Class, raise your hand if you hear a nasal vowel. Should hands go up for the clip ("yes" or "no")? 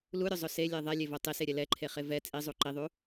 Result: no